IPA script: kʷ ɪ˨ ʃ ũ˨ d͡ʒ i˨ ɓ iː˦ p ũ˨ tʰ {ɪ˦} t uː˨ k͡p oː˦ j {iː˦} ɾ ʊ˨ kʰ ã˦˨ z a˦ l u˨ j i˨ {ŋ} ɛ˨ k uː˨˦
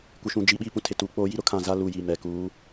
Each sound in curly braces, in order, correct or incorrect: incorrect: ɪ˨, incorrect: i˦, incorrect: m

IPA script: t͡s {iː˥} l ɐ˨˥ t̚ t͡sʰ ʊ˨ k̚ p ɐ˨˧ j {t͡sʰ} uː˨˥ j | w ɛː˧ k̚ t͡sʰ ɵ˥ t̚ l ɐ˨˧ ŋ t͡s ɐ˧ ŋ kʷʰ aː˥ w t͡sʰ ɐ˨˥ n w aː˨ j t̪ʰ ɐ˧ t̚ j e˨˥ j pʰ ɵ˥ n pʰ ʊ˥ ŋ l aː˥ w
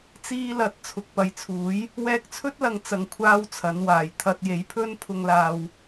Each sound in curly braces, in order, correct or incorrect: incorrect: iː˧, correct

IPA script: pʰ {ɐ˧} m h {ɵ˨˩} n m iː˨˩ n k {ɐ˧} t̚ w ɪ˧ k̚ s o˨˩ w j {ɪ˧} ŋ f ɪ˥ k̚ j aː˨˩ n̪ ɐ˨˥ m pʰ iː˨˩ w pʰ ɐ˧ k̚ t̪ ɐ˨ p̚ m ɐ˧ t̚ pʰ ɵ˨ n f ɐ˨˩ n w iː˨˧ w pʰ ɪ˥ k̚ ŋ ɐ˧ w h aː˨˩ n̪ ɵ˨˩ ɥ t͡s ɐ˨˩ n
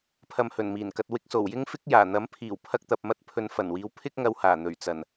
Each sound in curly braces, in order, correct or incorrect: correct, correct, correct, incorrect: ɪ˥

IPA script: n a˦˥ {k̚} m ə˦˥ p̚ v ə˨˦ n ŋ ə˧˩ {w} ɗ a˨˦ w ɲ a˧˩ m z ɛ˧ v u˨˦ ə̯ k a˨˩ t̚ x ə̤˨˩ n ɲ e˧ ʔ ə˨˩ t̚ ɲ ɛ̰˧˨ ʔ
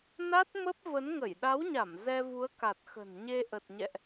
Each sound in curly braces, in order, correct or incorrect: incorrect: t̚, incorrect: j

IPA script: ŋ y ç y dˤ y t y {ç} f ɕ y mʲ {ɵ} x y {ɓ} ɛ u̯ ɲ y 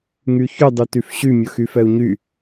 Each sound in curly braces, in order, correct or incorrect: incorrect: none, correct, incorrect: f

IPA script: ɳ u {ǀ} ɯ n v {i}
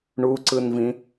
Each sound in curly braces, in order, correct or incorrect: correct, incorrect: ĩ

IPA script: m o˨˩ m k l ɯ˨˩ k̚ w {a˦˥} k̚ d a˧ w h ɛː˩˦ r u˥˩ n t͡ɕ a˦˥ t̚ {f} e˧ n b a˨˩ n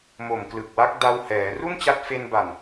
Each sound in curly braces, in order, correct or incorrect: correct, correct

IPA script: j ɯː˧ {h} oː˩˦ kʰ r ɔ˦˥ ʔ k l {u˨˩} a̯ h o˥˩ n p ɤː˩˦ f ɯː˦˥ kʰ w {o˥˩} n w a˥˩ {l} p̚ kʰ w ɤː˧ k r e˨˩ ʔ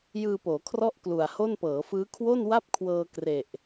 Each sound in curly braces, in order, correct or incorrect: incorrect: p, correct, correct, incorrect: none

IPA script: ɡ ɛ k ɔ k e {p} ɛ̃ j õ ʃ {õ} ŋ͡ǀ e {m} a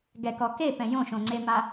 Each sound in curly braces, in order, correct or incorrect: correct, correct, correct

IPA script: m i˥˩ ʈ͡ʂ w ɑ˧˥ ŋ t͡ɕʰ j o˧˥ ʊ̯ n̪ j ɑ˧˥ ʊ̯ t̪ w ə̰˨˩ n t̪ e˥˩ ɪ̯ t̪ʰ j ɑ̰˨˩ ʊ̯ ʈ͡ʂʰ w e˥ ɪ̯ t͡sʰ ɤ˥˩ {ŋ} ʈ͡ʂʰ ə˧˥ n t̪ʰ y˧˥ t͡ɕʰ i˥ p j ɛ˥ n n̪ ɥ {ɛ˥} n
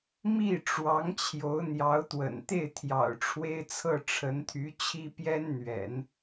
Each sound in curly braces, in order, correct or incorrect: incorrect: none, incorrect: ɛ̰˨˩˦

